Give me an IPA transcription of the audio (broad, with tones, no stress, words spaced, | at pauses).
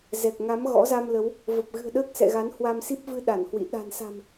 zɛ˨˩k̚ ŋa˨˦m ɣɔ̰˧˥za˧mlə˨˦w | və˨˩p̚ɣɨ̤˨˩ə̯ ɗəː˦˥k̚sɛ̰˧˨ɣa˨˦n hwa˧msi˦˥p̚vɨ˧ ɗa˧˩nhwḭ˧˨ ɗa̤˨˩nsa̤˨˩m